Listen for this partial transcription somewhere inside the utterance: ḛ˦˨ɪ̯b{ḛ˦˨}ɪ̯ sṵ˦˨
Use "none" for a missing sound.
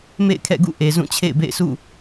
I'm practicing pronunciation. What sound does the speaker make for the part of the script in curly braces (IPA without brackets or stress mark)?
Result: ḛ˦˨